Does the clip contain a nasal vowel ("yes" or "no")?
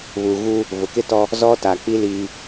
no